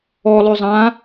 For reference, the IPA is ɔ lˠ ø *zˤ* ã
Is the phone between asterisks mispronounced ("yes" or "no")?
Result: no